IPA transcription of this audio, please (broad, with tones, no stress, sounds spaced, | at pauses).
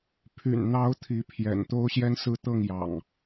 pʰ y̰˨˩ n n̪ ɑ˨˦ ʊ̯ t̪ʰ i˨˦ pʰ j ɛ̰˨˩ n t̪ o˦ ʊ̯ ɕ j ɛ˦ n s ɹ̩˦ t̪ ɤ˥˨ ŋ j ɑ̰˨˩ ŋ